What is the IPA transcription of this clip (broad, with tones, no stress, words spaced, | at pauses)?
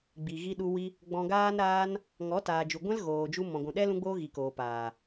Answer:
ɡ͡bi˨ ɣi˧ɗu˧ wi˦ | ɡ͡bɔ̃˧ɡaː˦nɾaː˦n | ŋɔ˨˦taː˨d͡ʒu˨ ɡʷɛ̃˦lɣoː˨d͡ʒu˧ mɔ̃˨ɡʷũ˨ɗɛ˦ lũ˦ɡ͡boː˦ɣi˨koː˨ paː˨